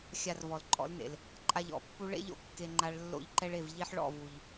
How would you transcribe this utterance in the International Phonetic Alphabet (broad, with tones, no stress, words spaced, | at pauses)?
xʲa˧rvɔ˨lǃʼɔ̰˨˦lnḛ˨l | ǃʼa˧ʎɔ̰˨˦pːu˦ ɭḛ˦ʎo̰˦˨ kːe˦ŋ͡ǃa˦ɭ lːo̰˦˨ʎǃɛ˦ɭe˦˨v ʎi˦ħɭɔ̰˦˨vu˨ʎ